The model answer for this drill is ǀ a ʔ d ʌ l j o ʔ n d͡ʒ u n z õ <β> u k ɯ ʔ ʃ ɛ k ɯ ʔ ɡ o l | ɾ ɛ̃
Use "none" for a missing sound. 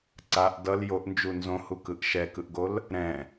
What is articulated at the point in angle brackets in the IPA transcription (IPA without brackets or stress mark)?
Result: h